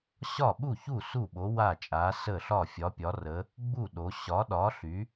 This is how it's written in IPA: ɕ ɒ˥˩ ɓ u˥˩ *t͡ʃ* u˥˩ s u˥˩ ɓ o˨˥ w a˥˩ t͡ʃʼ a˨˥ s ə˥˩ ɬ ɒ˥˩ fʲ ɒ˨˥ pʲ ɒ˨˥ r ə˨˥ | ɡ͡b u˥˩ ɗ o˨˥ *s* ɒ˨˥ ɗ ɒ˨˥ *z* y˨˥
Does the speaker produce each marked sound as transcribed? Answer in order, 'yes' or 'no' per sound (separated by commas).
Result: no, no, no